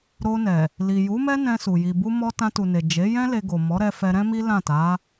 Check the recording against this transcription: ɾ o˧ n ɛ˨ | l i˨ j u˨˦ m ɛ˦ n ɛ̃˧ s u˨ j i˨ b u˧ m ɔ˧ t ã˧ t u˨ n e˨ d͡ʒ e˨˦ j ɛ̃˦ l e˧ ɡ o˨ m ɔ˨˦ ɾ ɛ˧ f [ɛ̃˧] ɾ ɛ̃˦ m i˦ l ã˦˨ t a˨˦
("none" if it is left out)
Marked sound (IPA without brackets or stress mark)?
ɛ˧